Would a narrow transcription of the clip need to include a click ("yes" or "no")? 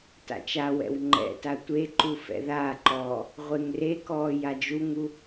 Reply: yes